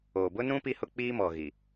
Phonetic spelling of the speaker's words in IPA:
o˨ b ʊ˦ n ũ˦ p i˦ h ʊ˦ k͡p iː˦ m ɔ˨ ɣ i˨

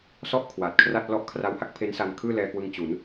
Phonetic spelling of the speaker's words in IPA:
s ɔ˥˩ ʔ kʰ w a˨˩ t̚ kʰ r a˥˩ t̚ l ɔ˦˥ ʔ kʰ r a˦˥ w h a˦˥ k̚ pʰ e˦˥ n s a˧ n kʰ ɯː˥˩ l ɛː˧ k w ɯ˧ ŋ t͡ɕ u˩˦ n

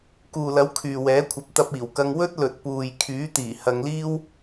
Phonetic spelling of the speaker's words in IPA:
k uː˨ l ɐ˨˥ w kʰ yː˨ w ɛː˨˥ kʷʰ ɐ˨˥ p̚ t̪ ɐ˧ p̚ iː˨˩ w k ɐ˧ ŋ w ɵ˥ t̚ l ɵ˨ t̚ p uː˨ j kʰ yː˨˥ t̪ iː˨˩ h ɐ˨˧ ŋ l iː˥ w

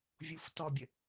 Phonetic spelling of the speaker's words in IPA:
vʲ u f t ɔ bʲ ə

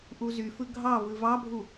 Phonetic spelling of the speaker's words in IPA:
ʔ u z y f ɯ ɡʱ ɑ v ɯ v ɑ bʱ u

